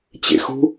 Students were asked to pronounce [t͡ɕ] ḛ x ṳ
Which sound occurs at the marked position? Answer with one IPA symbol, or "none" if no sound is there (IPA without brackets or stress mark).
t͡ɕ